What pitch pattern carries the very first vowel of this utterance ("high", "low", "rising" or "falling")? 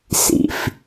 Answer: low